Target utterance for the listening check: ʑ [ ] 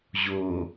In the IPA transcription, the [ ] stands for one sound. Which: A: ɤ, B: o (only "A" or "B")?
B